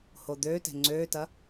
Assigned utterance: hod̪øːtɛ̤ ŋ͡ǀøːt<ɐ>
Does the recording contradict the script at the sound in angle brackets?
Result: no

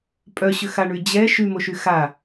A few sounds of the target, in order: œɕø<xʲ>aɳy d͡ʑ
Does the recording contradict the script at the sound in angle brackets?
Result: yes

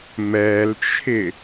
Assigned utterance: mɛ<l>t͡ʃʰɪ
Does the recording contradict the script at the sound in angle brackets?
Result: no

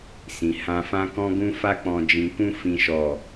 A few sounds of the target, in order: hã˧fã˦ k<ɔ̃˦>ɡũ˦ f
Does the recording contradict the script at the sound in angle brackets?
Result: no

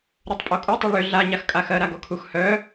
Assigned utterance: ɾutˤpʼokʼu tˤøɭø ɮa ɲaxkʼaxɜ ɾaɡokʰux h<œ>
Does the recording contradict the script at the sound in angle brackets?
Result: no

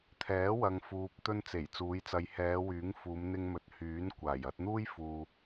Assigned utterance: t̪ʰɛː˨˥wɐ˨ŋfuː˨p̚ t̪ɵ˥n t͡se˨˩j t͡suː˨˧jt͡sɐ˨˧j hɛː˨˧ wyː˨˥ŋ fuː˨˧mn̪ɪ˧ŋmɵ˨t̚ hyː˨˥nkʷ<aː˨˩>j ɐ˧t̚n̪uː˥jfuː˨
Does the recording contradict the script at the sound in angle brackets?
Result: no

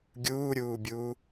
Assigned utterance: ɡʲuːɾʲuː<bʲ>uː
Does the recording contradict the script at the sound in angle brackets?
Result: no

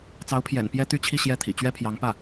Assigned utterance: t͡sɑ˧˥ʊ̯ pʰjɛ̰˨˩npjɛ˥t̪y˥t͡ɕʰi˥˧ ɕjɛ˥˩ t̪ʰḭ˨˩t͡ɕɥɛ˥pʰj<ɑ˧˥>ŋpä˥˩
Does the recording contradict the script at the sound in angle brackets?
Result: no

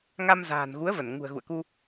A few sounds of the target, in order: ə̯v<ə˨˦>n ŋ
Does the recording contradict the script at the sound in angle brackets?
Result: yes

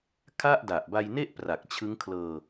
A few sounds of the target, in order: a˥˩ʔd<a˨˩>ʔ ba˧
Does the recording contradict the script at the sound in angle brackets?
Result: no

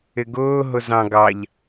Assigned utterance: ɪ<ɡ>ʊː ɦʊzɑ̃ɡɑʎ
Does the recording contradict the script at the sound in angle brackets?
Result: no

